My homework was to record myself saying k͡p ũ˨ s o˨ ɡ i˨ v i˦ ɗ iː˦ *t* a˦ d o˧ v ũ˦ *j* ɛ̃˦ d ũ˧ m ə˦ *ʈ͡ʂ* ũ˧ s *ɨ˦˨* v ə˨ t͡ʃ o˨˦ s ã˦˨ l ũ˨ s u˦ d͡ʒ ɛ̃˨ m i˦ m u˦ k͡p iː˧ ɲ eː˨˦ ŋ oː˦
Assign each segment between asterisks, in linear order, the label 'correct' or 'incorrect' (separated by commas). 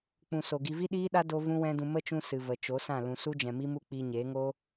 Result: incorrect, incorrect, incorrect, incorrect